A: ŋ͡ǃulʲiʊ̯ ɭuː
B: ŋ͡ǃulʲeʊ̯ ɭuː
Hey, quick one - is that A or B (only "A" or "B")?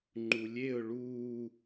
B